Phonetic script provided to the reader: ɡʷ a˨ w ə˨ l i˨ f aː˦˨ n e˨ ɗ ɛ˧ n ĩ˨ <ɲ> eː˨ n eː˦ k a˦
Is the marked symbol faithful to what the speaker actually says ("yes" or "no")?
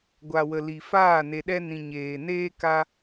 yes